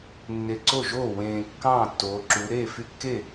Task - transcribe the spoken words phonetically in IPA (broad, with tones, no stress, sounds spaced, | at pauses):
nː e˨˩ ǀ o˥˩ ʒ oː˥˩ w ẽː˨˩ kː ɑ̃ː˥˩ tː oː˩˧ ǁ u˩˧ ɾ eː˥˩ f y˦ kː e˥˩